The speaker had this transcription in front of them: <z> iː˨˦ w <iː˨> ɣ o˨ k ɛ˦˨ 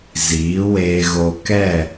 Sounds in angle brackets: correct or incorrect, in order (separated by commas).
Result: correct, incorrect